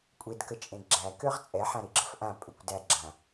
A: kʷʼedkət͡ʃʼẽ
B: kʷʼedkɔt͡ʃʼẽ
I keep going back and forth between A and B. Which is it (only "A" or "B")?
A